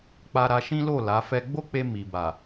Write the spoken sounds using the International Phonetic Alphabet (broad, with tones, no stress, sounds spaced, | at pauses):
k͡p a˧ ɾ a˧ ʃ ĩ˦ l o˦˨ l a˨˦ f ɛ˦ ɡ͡b o˦ k͡p e˧ m i˨ b a˨